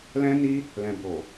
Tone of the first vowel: high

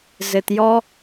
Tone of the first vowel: low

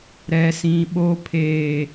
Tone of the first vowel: low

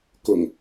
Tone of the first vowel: low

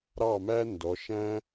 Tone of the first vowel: falling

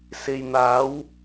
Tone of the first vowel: low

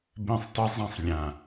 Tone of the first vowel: falling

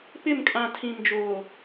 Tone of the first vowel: falling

